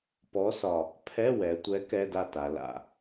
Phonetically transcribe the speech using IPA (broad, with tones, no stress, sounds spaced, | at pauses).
p ɔ˨˥ s ɒ˨˩ | pʰ ɛ˧˥˧ w ɛ˩˧ tʷ ɛ˨˥ k ɛ˧˥˧ d a˥˨ t a˩˧ l a̰˨˩